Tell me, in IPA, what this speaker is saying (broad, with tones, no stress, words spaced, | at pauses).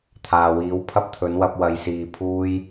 t̪ʰaː˨wiː˨˥w pʰɐ˥p̚t̪ʰɵ˨˥nwɐ˧p̚ wɐ˨˧jsiː˨ pʰuː˧j